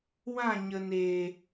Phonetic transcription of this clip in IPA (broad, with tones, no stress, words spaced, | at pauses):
wã˦˨ ɲə˨neː˨